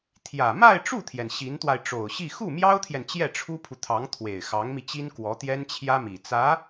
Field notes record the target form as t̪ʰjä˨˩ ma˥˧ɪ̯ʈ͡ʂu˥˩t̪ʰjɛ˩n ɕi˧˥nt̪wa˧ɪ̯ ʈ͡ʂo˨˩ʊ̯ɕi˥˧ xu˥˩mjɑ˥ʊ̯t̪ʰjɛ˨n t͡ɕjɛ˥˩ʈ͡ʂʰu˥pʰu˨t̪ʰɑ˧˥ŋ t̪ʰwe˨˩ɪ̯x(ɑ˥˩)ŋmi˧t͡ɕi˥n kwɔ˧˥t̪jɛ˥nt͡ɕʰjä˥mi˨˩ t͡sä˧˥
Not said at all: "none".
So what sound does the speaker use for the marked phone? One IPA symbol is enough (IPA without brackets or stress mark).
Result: ɑ˧˥